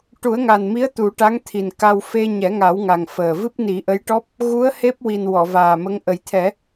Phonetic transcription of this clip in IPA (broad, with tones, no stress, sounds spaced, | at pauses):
ʈ u˨˩˦ ə̯ ŋ a˨˩ n m i˧˥ ə̯ t̪ u˨˩˦ ʈ a˧˥ ŋ t̪ʰ i˨˩ n k a˧ w f e˧ ɲ ɛ˨˩˦ ŋ a˨˩˦ w ŋ a˨˩ ŋ f əː˨˩ v ɨ˦˥ p̚ n i˨˩˦ ʔ ə˧˥ j ʈ ɔ˦˥ p̚ | ɣ u˧˥ ə̯ h e˦˥ p̚ w i˨˩ n w ɔ˨˩˨ v aː˨˩ m ə˧˥ ŋ ʔ ə˨˩ j t̪ʰ ɛ˨˩˦